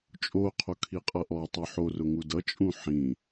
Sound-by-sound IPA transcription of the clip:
t͡ʃʼoqʰo kʰiqʼʌʔɔtˤo ħo rʊŋudʌt͡ʃʼũ ħĩ

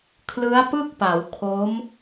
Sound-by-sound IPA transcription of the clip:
kʰlɯ˦˥a̯pɯ˥˩k̚pa˩˦wkʰo˦˥m

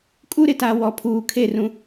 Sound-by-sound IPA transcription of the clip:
kʼu˦ɾɪ˨ta˨ wɔ˨pʰuː˨kʰe˦˨rũ˦

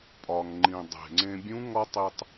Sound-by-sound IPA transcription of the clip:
pʼɒ˩ŋŋ͡ǃĩ˩ dˤe̤˩ŋ͡ǀẽ˧ bʲũ˧˥ ŋɒ˥tˤi˧tˤ

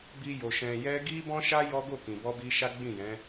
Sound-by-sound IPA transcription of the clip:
bi˧jo˨ ʃɛ̃˨jɛ˧ ɡi˦ bɔ̃˦ʃa˦ jɔ˦ɡo˦˨kĩ˨bɔ˧ bi˧ʃa˦ ɡ͡bĩ˦˨jɛ̃˨˦

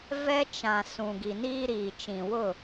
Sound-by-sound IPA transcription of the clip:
vɛ˦ t͡ʃã˨ sũ˨ɡi˨niː˦ɾiː˨ t͡ʃĩ˨wʊ˦˨

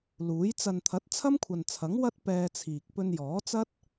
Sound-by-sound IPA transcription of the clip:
luː˨˥j t͡sɐ˨nt̪ʰɐ˨˥t̚ t͡sʰɐ˥mkʷʰɐ˨nt͡sʰɐ˨˥ŋ wɐ˥t̚ pɛː˧t͡sʰiː˨k̚ pɵ˧njɔː˨˥t͡sɐ˥t̚

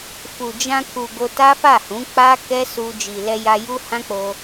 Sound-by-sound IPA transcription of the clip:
fu˨ d͡ʒã˧ku˨ ɡo˧ta˦fa˦˨hũ˨˦ k͡pa˦ kɛ˦su˧ d͡ʒi˨lɛ˧ ja˧ju˦hã˦k͡po˧

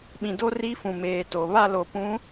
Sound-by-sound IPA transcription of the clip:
ɓĩ˨do˦ ri˦fũ˨meː˨to˨ βa˦˨lo˨pũ˨˦

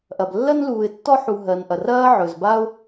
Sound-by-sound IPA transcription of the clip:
ʔɐ˩b lːɜ˥nluː˨ɪ̯tːɔ˥ ħu˨ ɦɜ˩nʔɐ˩rɐː˦ ʕɵ˩z ba˥ʊ̯

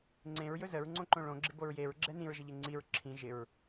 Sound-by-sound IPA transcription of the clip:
ŋ͡ǀẽɹjɵ zəɹŋ͡ǀõǃõ ɭõɡ͡ǁɪboɹ jeɹɡ͡ǁɛ nĩɹʒəʎe ŋ͡ǀiɹ ǁʰĩ ʒɪɹ

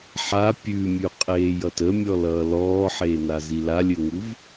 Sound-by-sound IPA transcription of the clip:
ħa pʲʉmʲʉqʼeːjʌt əmʲɔlʌː lɔːħeːnazi lalʲɘŋuv

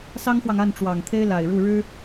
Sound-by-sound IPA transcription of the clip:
sɑ˥ŋxwɑ˨ŋa˥˩n ʈ͡ʂwɑ˨˩ŋt̪ʰe˥ɪ̯ la˨˩ɪ̯ɻu˥˩ ɻɻ̩˥

